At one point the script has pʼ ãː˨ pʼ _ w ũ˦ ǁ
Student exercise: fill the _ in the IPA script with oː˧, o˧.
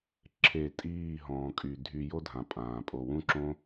o˧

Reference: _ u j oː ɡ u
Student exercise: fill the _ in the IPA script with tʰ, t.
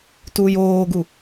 t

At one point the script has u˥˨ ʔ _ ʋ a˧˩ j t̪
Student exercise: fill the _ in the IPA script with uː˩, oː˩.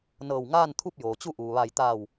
uː˩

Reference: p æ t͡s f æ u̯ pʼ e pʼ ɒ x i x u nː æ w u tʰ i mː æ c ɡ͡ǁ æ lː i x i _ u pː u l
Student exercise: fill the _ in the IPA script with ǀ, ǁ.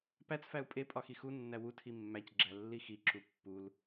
ǁ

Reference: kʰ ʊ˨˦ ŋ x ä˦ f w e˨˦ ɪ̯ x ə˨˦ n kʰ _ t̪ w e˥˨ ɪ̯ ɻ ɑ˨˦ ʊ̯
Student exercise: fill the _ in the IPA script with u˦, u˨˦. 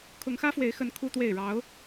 u˦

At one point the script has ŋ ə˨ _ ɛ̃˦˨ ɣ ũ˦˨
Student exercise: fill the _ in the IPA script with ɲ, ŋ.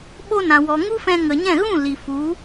ɲ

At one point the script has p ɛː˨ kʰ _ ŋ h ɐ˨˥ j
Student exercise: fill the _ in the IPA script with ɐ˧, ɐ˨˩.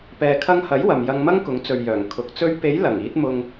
ɐ˧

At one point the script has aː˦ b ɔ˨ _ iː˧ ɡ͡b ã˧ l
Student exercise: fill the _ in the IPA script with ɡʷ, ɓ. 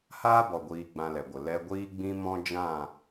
ɡʷ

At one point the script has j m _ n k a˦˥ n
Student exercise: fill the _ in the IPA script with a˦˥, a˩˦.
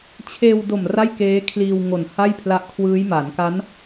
a˩˦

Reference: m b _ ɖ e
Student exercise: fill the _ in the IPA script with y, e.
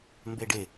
e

